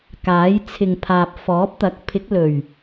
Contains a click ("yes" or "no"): no